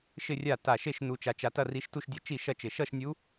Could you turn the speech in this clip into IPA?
ʃɪ˥˧rʲa˥˩ ta˧˩ ʃe˥˧ʃnu˧t͡ʃa˧t͡ʃa˧ tɐ˥˧ri˧˥ʃtu˥˧ʃdʲɐ˥˧ t͡ʃi˥˩ʃɐ˥˧t͡ʃɪ˧˩ ʃʌ˥˧ʃnʲu˧˥

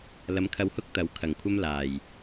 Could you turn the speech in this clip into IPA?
lɐ˨˧mkʰɐ˧whʊ˥k̚ t̪ɐ˨˥w kʰɐ˨˩ŋkʷʰɐ˥m laː˨˩j

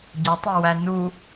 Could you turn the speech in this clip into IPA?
ɟɒtˤowæ nu

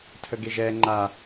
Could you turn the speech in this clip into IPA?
tʰəɡeʒɛ ŋ͡ǃa

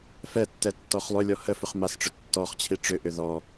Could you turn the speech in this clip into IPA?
fɛtːɛ tːɔχlˠʏlʲɔ həfʏχ masʈ͡ʂʏ tːɔχt͡ɕʰi ʈ͡ʂʏʔʏ ðɔ

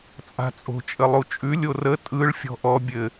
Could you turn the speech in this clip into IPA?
t͡sʼa̤t͡sʼo̤ t͡ʃʼəlˠut͡ʃʼʉ lʲorə tʼɯɭ fʲɔ̤ʔɔ bʲɘ

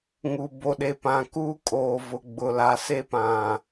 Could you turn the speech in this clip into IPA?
ŋu˨ bo˨ɗe˨pã˨kuː˦ kʼoː˨vʊ˨ɡ͡bʊ˨la˨˦ se˦pã˨

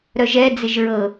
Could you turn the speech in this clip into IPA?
ɾœʒɛ d͡zɪʒɹɤ

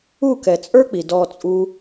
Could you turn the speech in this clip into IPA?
u˦˨kɛ˨t͡sʼə˞˦k͡pi˨ dɔ˧t͡sʼu˦

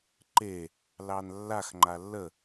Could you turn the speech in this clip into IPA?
ǃe | lɑnlːax ŋ͡ǃalːə

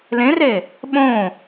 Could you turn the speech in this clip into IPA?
lẽre | ɓõ

